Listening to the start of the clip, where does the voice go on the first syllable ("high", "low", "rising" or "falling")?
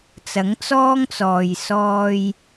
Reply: rising